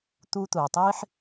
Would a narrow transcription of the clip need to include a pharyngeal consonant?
yes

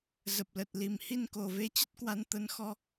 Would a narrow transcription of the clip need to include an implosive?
no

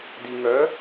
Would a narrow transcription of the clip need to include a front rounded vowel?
yes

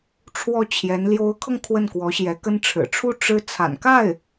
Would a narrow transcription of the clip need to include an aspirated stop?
yes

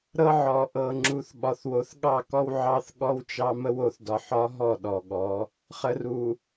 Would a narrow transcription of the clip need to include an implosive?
yes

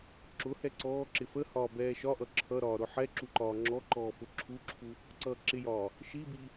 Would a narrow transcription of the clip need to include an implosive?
no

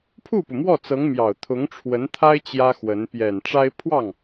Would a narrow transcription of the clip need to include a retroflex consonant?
yes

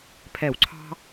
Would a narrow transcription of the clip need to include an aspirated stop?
yes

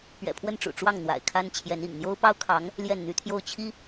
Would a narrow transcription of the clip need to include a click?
no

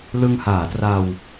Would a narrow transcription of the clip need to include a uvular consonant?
no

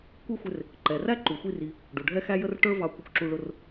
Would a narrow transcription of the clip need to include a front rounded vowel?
no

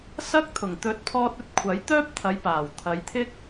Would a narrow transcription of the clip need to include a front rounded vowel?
yes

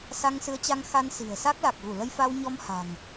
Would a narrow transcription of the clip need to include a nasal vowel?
no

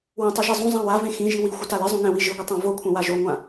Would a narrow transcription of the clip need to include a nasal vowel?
yes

